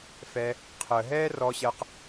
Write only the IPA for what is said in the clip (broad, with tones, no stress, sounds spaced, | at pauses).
f ɛ˧ | qʰ ə˨ ɦ ɛː˦ r ɔ˧ ɕ ɜ˧ q